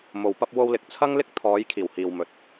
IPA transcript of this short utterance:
m o˨ w p ɐ˧ p̚ w o˧ w l ɪ˨˥ k̚ t͡sʰ ɐ˥ ŋ l ɪ˥ k̚ t̪ʰ ɔː˨˧ j kʰ iː˨˩ w h iː˨ w m ɵ˨˥ t̚

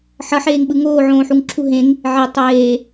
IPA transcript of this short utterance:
ħ ʌ ħ eː ŋ ɓ ɯ ŋ oː ʕ õː ħ u ŋ ǁʰ u ɦ ẽ ŋ | ʕ e tˤ eː

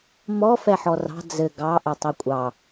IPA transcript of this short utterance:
m ɔ f ɛ ħ ɔ r ɑ̤ d͡z ɘ ɡ ɑ ʔ ɘ tˤ e kʷʼ ɑ

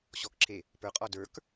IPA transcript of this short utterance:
ɕ ɔ k ǁʰ e | p ə˞ qʼ ɔ d ə˞ k

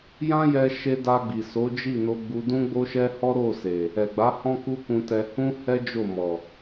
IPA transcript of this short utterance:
j ã˦ j ɛ˧ ʃ e˧ d a˧ ɡ͡b i˨ s o˨˦ d͡ʒ i˦˨ n o˧ ɡ͡b u˧ d ũ˦ ɡ͡b o˦ ʃ ɛ˦ h ɔ˦ ɾ o˦˨ s e˨ | ɛ˨ ɡ͡b a˨˦ h ɔ̃˦ k u˦ k ũ˧ t ɛ˧ h ũ˦ h ɛ˦ d͡ʒ o˦˨ m ɔ˨

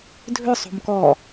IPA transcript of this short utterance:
dʱ ʏ sˤ o̤ m k ɔ

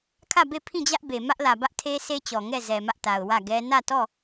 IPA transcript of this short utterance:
kʰ ä˦˨ b e˦˨ pʰ ĩ˦˨ d͡ʑ ä˦ ʔ b e˨ m ä˦ ʔ l ä˨ b ä˦ ʔ tʰ e˦ sʰ e˦ t͡ɕ ɔ˨ ŋ ɛ˦˨ z ɛ˨ m ä˦ ʔ t a˨ ʊ̯ w ä˦˨ ɡ ɛ˦ n ä˦˨ t ɔ˦˨

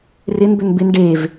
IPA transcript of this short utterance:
r ɪ n b ʏ n b ɪ n ɖ e v

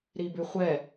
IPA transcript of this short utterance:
ɾ i b ʉ χʷ ɛ

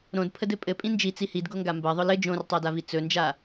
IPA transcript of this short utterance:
ɾ õ d pʰ ə d ɘ pʼ ɘ pʼ ĩ n d͡ʒ i t͡s i h i d ɡ o ŋ ɡ a m b ɜ ðˤ ʊ l ɘ d͡ʒ õ r tˤ ɜ d a v i t͡s ɵ n d͡ʒ a

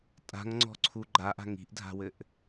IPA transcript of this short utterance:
tʼ a̤ ŋ ŋ͡ǀ ɔ̤ ǀʰ u ɡ͡ǃ a ʔ a̤ ŋ i̤ ʔ dʱ a̤ w ɘ ʔ

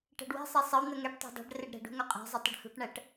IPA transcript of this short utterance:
ʈ æ̤ ɖ w ɛ̤ sˤ ɛ sˤ ə w n̪ ə ŋ ɛ ʈ tˤ æ̤ dˤ ɛ̤ ɖ r ɪ ɖ ɾ ɛ̤ ɖ ṳ ŋ œ qʼ æ̤ zˤ ɪ tˤ ə ɖ h ṳ ʈ ɳ æ ʈ

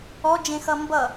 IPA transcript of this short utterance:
ɔ d͡ʒ ẽ x ʌ m b ʌ

